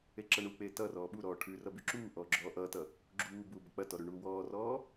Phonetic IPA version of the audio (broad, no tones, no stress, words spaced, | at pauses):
eǁɐɳuk͡peː tʌrɔː ɓuɾɔː ʈʰʉrʌ byǁuːʔɔː ɡ͡ǁɔːʔʌtʌ | ɡ͡ǁuːbuː bɐk͡pɐtɔ ɾʉɳuːwɔːrɔː